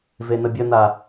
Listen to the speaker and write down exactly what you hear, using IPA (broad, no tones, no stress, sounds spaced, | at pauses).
v e n̪ ə bʲ ə n̪ a